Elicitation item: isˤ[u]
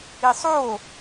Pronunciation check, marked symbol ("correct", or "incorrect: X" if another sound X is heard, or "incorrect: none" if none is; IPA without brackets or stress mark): incorrect: o